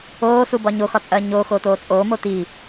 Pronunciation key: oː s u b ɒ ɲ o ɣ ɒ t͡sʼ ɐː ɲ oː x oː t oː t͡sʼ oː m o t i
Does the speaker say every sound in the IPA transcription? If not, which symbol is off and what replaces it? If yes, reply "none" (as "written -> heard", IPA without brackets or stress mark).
ɣ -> x